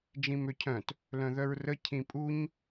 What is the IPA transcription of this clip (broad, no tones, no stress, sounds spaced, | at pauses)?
d͡ʒ ĩ m ø cʰ œ̃ t | l œ̃ ð œ ɹ r ə cʰ ĩ pʼ u ɲ